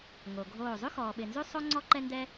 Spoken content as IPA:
ŋ o˨ ɡʱ oː˦˨ zˤ ʉ˦ x ɔː˨ ɓ ɪ˨ n z ʉ˦ sˤ o˦ ŋ͡ǀ ɔ˦ ǃ ɛ˦ n d ɛ˦

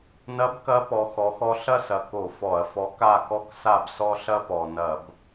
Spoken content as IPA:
n ɐ˧˥ b k ɐ˧˥ p ɔ˧˥ x ɔ˧˥ x ɔ˥ ɬ ɐ˥ s ɐ˨˩ k o˧˩˧ f ɔ˧˩˧ ɐ̯ f ɔ˧˥ k a˥˨ k ɔ˥ k s a˥˨ b s ɔ˥ ɬ ɐ˥ p ɔ˨˩ n ɐ˧˩˧ b

